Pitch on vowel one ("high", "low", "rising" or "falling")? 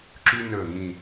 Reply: high